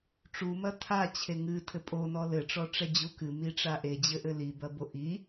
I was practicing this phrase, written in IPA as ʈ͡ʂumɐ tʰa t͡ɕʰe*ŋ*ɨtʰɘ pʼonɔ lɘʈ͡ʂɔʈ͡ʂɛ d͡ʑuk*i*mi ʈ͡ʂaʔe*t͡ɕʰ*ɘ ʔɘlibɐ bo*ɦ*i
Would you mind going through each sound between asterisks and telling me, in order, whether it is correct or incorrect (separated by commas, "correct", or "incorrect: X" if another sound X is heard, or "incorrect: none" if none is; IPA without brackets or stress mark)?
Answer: correct, incorrect: ɨ, incorrect: d͡ʑ, incorrect: ʔ